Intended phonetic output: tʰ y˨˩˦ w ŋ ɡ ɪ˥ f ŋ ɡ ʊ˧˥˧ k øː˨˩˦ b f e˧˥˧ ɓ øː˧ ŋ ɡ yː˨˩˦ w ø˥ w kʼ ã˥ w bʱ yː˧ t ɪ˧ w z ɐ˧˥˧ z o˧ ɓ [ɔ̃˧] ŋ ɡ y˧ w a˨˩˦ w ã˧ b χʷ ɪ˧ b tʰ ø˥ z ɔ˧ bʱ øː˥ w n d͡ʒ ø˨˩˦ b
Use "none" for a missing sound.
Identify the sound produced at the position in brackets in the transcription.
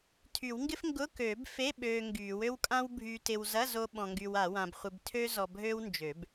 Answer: ɔ̃˧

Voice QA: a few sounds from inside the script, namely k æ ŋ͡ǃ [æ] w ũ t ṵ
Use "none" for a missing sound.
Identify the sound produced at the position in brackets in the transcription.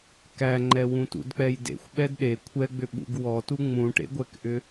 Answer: ɛ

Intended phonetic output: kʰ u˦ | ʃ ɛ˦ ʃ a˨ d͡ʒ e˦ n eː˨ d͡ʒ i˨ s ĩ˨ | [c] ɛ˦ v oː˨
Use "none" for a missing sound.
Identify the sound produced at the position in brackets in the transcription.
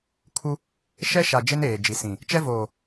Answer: t͡ʃ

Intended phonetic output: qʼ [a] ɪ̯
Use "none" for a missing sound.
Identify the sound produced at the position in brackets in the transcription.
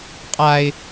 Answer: a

